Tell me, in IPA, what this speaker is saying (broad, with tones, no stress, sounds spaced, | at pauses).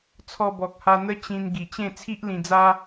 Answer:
t͡sʰ ɔ˧ b ɔ˨ k̚ h a˧ n̪ ə˦ t͡ɕ ĩ˧ n ɡ i˨˩ t͡ɕ ẽ˥˧ t͡sʰ i˦ ʔ l ĩ˧ d͡z a˦